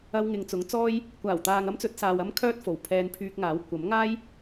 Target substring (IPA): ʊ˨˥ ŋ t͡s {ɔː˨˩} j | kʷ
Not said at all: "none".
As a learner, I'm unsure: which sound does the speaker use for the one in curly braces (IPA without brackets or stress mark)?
ɔː˥